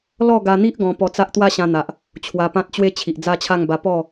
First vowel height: mid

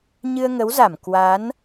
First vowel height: high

